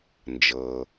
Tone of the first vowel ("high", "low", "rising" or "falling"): low